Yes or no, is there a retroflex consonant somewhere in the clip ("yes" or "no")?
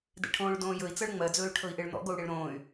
yes